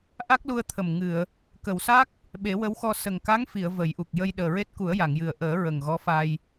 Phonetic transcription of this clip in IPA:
ʔ a˦˥ k̚ l u˧ ə̯ t̪ʰ ə˨˩ m ŋ ɨ˨˩˨ ə̯ | k ə˨˩˨ w s a˦˥ k̚ | ɓ e˨˩˦ w ə˧˥ w x ɔ˧ s ə˨˩ ŋ k a˧˥ ŋ f i˨˩˨ ə̯ v ə˨˩˦ j ʔ u˨˩ k̚ j ə˧ j ɗ əː˨˩ ɹ e˦˥ t̚ k u˨˩˦ ə̯ j a˨˩˨ ŋ j ɨ˨˩ ə̯ ʔ əː˨˩˦ ɹ ə˨˩ ŋ ɣ ɔ˧˥ f a˧ j

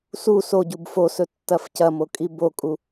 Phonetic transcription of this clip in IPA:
s u s o ɟ u b f o s ɵ tː ɐ f c ɐ m o kʼ i b o kʼ u

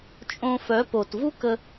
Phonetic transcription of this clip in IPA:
t͡ʃʼ õ˧ f œ˨˦ p o˨ t v u˦ k ə˧

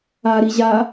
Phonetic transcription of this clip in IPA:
a ɾ i ʑ a

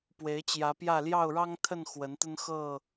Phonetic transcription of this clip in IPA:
p w e˨˦ ɪ̯ t͡ɕ j ä˨˦ p j ä˥˨ l j ɑ˥˨ ʊ̯ ɻ ɑ˦ ŋ t̪ʰ ə˥˨ n x w ə˨˦ n t̪ ə˦ n x ɤ˥˨

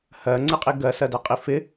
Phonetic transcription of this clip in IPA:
h ɜ ŋ͡ǀ ɪ qʼ i ɡ ɜ s ɜ d ɛ qʼ i f ɪ

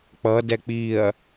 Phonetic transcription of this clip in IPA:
k͡p ʌ d ɛ k͡p i ɐ̯

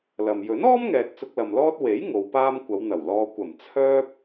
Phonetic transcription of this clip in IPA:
l ɐ˨ m j ɵ˨˥ n ɔː˥ m ŋ ɛː˨ t̚ t͡s ʊ˧ k̚ l ɐ˨ m l ɔː˥ t̚ w e˨˥ j ŋ o˨˧ w p aː˥ m kʷ ɐ˨˧ w n̪ ɐ˨˩ w l ɔː˧ kʷ ɐ˨˩ m t͡sʰ œː˥ p̚

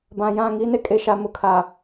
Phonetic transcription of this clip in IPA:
b ã˨ j ã˦˨ ŋ i˦ n e˦ kʼ e˨ ʃ a˨ m ʊ˨ kʰ a˨

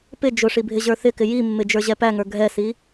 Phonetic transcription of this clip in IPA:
p ɪ d͡ʒ ʊ ʂ i bʱ ɪ ʑ ə˞ θ ɪ k ɪ j i mː ɪ d͡ʒ ə˞ ʑ ɛ p æ ŋ ə˞ ɡʱ ɛ s i

